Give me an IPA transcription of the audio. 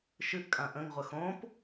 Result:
ʃ ɨ ʔ kʼ ã ʔ ə̃ ŋ ʁʷ ə x õ p

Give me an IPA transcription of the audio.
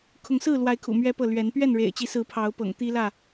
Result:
kʰ ʊ˨˦ ŋ s ɹ̩˥˨ l w a˨˦ ɪ̯ kʰ ṵ˨˩ m ɥ ɛ˦ p ɤ˥˨ l ɥ ɛ˨˦ n p ɥ ɛ˥˨ n ɻ ḛ˨˩ ɪ̯ t͡ɕ i˨˦ s ɹ̩˨˦ pʰ ɑ˨˦ ʊ̯ p ɤ̰˨˩ ŋ t̪ i˦ l ä˥˨

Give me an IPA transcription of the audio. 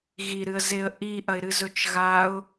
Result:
ɣ i ɾ ɨ ə̯ z e ə̯ ʔ i ʔ ɐ ɪ̯ ɾ ɨ z ɵ t͡ʃ ɣ a ʊ̯

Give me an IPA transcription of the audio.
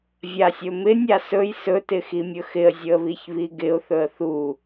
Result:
vʲ a sʲ ɵ m ɪ nʲ a s ɵ j s ɵ t ɪ x i mʲ ɵ x ɪ ə̯ zʲ ɵ ə̯ β i ç β i ɡ ɪ ʊ̯ θ ɵ ə̯ θ u

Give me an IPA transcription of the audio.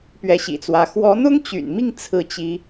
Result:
p ɥ ɛ˧˥ ɕ ḭ˨˩ t͡s w ä˧˥ x w ɔ˧˥ n̪ ʊ˥ ŋ t͡ɕ y̰˨˩ n m i˥˧ ŋ t͡sʰ ɹ̩˥˩ t͡ɕ i˥

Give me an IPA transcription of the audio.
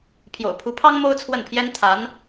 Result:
pʰ j o̰˨˩ ʊ̯ pʰ u˧˥ pʰ ɑ˥ ŋ m o˥ ʊ̯ t͡sʰ w ə˥˩ n pʰ j ɛ˥ n t̪ʰ a˧˥ n

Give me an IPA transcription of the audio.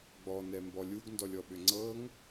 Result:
ɡ͡b ɔ n ɛ m b ɔ lʲ u ɡ n d ɔ lʲ ɔ ɓ ʏ ŋ͡ǀ ɤ ŋ

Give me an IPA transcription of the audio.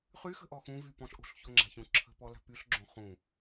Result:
χ y x ə̤ ʔ ɔ x ũ v y p ɔ̃ ɬ ʔ o̤ ɬ ç o ŋ͡ǁ a̤ ç ũ ǁʰ ə̤ p ɔ l a̤ p y ɬ ɡ͡ǁ õ χ ũ

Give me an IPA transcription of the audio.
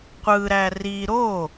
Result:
qʷ ɯ ɾ æ r i ɾ o

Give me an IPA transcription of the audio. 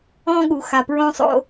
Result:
ɔ̃˦ ɠ u˨ x a˨ p ɹ õ˦ sˤ o̰˦

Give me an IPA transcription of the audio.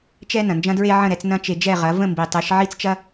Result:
t͡ʃ ɛ˧ n ɐ̃˨ n d͡ʒ ɐ̃˦ d ɹ e˦ ʕ ə̃˦˨ ɾ ɛ˧ t͡s n ɐ̃˦ t͡ʃ e˧ d͡ʒ ɛ˦˨ ʁ ɐ˨˦ v ə̃˦˨ m b i˨ tˤ e˨˦ ʃ ʕ i˦ t͡s t͡ʃ ɐ˦

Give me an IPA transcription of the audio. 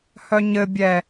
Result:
h œ ɲ ɘ bʲ ɛ

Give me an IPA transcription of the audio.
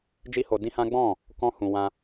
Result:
d͡ʒ i˦ h o˧ d ĩ˦ h ã˦ ɡ͡b ɔ̃˦˨ | k ɔ̃˦ h ũ˧ w ã˧

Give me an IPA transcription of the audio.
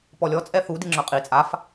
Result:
p ɔ lʲ ɔ t͡sʼ ɛ θ u d i ŋ͡ǁ œ qʼ i t͡sʼ a f

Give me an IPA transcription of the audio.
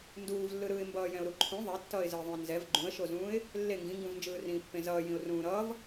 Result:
n d uː v lː ɯ ɾ ɯː ɪ̯ m b ʌː j ɛ̃ ʊ̯ ɾ u ǃʰ ũ ðˤ e tː ʌː ɪ̯ z ɯ ɪ̯ ðˤ ũ ɪ̯ n z ɛ v ɡ͡ǃ ũ ə̯ ʃ o z ũː ɪ̯ | lː e ŋ ɡ ĩ ŋ ɡ ũ v n d͡ʒ ɯː r ĩː pː ẽ z ʌː j ĩ ʊ̯ r ũː ɾ ʌː v

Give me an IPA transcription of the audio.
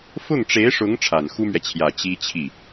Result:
f ʊ˥˩ ŋ ʈ͡ʂ e˧˥ ɪ̯ ʂ ʊ˧˥ ŋ ʈ͡ʂʰ a˨˩ n x u˥ m ɥ ɛ˨ t͡ɕʰ j ä˨˩ t͡ɕ i˥ t͡ɕʰ i˥˩

